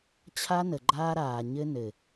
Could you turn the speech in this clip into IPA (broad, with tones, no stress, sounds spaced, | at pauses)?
t͡ɕʰ a˦ n ə˨ ɡ͡ǃ aː˦ ɾ aː˨ ɲ ɘ˦ n ɘ˨